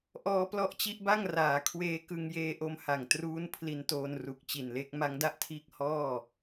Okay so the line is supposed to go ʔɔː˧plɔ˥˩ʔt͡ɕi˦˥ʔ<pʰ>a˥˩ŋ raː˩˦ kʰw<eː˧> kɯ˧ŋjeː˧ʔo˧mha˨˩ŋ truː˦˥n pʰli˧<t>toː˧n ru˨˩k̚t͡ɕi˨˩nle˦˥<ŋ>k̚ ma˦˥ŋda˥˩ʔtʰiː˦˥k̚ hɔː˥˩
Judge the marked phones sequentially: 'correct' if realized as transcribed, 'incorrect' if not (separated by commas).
incorrect, correct, incorrect, incorrect